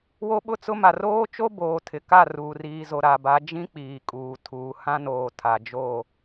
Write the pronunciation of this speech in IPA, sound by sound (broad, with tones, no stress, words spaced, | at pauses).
wo˦ɓʊ˦t͡sʊ˦ ma˨roː˦ t͡ʃo˦boː˨ tʰɪ˨ka˦˨ ruː˨riː˨zo˨ ɾa˨ba˨˦ d͡ʒĩ˦k͡piː˨kʼuː˨ tʰuː˨hã˦noː˨ tʰa˨ d͡ʒo˦˨